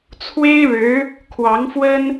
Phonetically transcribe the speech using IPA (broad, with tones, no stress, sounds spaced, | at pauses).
t͡sʰ w e˥ ɪ̯ ɻ ɻ̩˧˥ | kʰ w ɑ˧˥ ŋ f w ə˥ n